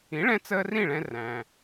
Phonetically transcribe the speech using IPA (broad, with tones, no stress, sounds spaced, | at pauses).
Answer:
ĩ˩˥ ɭ ɛ̃˧ t͡s əː˧ r ĩ˥˩ ɭ ɛ̃˧ r æ̃˩